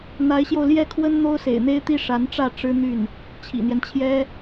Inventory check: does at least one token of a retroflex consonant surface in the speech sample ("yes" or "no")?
yes